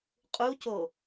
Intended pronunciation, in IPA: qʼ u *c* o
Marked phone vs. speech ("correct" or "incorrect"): correct